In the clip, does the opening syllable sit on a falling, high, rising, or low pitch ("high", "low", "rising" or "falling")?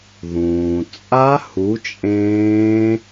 low